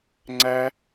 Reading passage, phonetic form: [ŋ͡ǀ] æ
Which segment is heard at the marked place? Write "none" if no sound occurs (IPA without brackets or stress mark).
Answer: ŋ͡ǀ